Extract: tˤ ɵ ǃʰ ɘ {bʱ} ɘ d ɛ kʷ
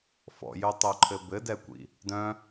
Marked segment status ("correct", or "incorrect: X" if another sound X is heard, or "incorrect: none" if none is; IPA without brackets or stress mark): incorrect: b